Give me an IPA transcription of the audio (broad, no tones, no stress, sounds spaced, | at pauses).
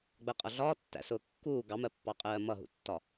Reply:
ɡ͡b ɜ qʼ ʌ ɮ ɒː tː æ̰ s ʊː kː uː ɡ ɑ m ɜ pː ɑ qʼ ɜː m ʌ ɦ ṵ tː ɒ